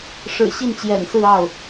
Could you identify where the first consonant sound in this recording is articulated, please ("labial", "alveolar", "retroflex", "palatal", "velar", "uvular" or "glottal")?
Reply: retroflex